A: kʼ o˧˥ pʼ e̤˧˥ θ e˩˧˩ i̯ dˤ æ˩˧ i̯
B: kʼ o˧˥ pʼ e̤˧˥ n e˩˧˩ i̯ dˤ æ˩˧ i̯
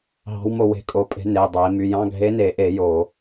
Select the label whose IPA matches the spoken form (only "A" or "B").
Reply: B